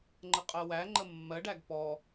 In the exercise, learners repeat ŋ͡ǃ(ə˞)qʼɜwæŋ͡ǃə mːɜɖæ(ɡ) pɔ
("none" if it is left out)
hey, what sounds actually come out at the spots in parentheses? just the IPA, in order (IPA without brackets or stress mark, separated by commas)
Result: ə, ɡ